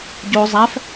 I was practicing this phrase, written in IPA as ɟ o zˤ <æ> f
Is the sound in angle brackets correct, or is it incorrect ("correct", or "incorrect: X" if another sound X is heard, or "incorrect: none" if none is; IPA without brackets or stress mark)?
correct